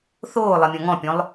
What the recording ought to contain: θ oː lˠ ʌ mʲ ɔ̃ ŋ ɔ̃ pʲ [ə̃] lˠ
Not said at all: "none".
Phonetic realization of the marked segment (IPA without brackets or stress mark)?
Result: ɔ̃